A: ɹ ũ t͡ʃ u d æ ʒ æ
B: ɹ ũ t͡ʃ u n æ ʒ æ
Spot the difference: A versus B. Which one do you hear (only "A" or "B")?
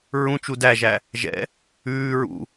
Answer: A